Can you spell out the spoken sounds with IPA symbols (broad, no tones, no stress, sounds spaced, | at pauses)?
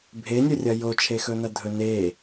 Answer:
bʱ e nʲ ɵ rʲ ɐ j o t͡ʃʰ e x ɵ n ɐ dʱ ɵ n e